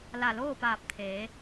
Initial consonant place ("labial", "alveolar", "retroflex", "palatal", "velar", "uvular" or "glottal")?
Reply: alveolar